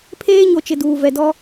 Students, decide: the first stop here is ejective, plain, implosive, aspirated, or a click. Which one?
aspirated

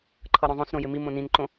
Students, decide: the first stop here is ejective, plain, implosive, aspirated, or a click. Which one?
click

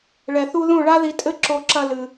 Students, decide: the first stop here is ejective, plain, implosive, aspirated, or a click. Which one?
ejective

